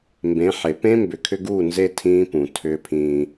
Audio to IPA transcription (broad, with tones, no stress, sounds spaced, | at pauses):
m b ẽ˨˦ ħ e˨ p ẽ˦ m b ʏ˨ kʰ ʏ˦ ɡ uː˦˨ n z e˦ tʰ ĩː˦ p ũ˨ tʰ ʏː˦ pʰ ĩː˦